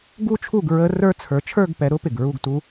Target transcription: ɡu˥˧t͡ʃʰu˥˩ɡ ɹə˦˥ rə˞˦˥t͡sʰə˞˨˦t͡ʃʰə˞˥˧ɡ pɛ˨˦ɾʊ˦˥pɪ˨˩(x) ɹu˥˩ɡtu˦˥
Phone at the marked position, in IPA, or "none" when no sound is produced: ɡ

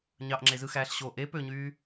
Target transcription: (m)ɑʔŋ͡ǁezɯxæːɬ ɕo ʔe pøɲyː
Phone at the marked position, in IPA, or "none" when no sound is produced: ɲ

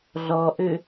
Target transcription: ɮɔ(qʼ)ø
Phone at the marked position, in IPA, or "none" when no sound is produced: ʔ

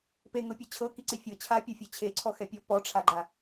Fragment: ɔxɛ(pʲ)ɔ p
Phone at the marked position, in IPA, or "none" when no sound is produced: pʲ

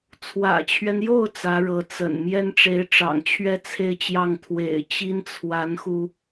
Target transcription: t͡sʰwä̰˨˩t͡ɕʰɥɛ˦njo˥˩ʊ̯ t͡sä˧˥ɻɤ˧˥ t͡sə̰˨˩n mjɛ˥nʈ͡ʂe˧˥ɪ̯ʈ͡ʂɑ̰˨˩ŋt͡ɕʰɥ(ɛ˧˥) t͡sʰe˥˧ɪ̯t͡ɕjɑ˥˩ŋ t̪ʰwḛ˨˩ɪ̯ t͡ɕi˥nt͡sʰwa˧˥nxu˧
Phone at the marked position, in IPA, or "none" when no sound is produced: ɛ˥˧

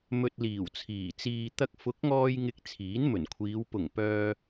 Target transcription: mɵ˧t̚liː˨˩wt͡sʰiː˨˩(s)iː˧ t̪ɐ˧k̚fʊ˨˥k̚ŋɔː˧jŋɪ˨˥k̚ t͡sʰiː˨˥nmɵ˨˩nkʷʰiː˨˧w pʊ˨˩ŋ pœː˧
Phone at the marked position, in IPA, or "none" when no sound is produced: t͡s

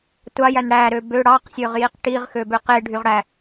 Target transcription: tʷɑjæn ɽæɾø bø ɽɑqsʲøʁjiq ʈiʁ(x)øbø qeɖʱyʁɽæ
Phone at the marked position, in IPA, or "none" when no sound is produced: x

